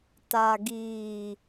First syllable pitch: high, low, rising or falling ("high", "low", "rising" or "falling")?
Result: low